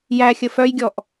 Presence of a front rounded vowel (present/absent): present